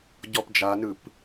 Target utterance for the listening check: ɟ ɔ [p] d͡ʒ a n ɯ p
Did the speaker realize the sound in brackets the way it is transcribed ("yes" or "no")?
yes